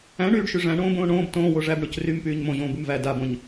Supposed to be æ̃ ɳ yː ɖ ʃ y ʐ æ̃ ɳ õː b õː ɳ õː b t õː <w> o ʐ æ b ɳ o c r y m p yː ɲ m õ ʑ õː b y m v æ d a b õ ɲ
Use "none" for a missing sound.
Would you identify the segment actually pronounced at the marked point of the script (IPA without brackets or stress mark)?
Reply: w